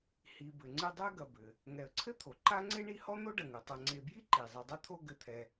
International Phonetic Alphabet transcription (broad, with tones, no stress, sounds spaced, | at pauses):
h i˨ b ɘ˨ ŋ͡ǀ ɨ˦ dˤ ɛ˥ ɡ ɐ˨ b ɘ˩ | ŋ ɛ˨ ə̯ ǀʰ ɘ˥ t̪ʰ o˩ ǃ a˥ ŋ͡ǀ e˥ ɳ i˦ h ɔ˥ n̪ o˥ ɖ ɐ˩ ŋ u˩ tˤ ɐ˨ ŋ͡ǀ e˨ b j i˦ ǃ i˩ zˤ ɘ˨ dˤ ɐ˥ t̪ʰ o˦ ɡ ɘ˨ t̪ʰ ɛ˨